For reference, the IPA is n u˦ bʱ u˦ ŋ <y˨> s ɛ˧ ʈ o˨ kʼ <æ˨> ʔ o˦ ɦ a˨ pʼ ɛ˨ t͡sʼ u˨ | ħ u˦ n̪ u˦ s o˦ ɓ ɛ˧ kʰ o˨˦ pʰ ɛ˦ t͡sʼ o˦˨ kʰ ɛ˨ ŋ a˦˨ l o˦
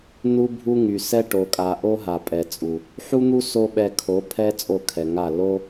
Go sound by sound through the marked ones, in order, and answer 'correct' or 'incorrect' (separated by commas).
correct, incorrect